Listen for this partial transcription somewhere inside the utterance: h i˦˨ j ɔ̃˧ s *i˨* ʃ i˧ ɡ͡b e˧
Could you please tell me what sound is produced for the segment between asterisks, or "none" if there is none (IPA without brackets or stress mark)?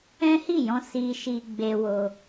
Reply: i˧